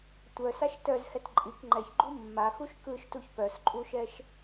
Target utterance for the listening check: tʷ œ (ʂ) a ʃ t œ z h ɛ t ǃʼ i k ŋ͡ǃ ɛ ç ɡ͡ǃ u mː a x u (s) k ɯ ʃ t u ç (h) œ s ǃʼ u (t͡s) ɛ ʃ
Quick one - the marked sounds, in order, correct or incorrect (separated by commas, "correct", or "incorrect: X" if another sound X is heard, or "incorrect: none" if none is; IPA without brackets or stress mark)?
incorrect: s, incorrect: ʃ, incorrect: p, incorrect: ʃ